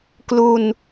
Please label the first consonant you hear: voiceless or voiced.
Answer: voiceless